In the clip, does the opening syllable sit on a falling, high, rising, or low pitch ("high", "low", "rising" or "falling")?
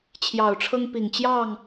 low